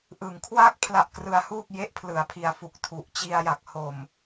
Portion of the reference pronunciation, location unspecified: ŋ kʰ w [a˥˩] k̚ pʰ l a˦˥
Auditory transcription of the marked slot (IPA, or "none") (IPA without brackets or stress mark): a˥˩